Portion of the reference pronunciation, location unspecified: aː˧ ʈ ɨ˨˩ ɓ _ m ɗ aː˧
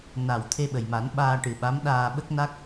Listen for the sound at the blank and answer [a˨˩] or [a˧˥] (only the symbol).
a˧˥